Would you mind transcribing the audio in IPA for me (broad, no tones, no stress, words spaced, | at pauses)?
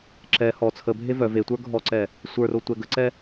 ǁɛ hɔ t͡sʰəbʱe vœ vetʷə˞ ɡʱɔǀɛ | sʷə˞ro tʷɛɡəǀɛ